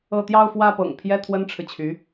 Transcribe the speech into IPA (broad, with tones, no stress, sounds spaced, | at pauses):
ɤ˥˧ t̪ j ɑ˥˧ ʊ̯ f w ä˥˩ p ɤ̰˨˩ ŋ pʰ j ɛ˥˩ t̪ʰ w ə˥ n ʈ͡ʂʰ ɻ̩˨ t͡ɕʰ y˧˥